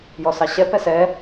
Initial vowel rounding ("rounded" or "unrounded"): rounded